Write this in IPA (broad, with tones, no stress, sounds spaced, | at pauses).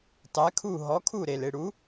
tˤ ɛ˨˥ kʰ u˦˨ ɦ ɔ˨˥ kʰ u˦˨ ɾ e˨˩ l ɪ˦˨ ɽ u˨˥